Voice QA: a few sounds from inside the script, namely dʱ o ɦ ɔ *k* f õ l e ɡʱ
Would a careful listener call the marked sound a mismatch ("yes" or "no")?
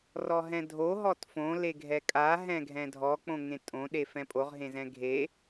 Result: yes